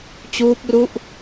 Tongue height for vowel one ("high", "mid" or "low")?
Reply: high